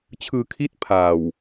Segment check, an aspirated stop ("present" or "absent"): present